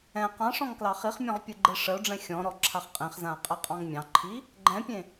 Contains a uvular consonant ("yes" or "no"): yes